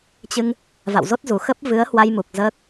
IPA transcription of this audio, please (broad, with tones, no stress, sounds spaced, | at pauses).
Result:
t͡ɕ ɨ˧ ŋ | v a̰˧˨ w z o˦˥ t̚ z u˨˩ x ə˦˥ p̚ v ɨ˨˦ ə̯ h w a˧ j m u˨˩ k̚ z əː˦˥ k̚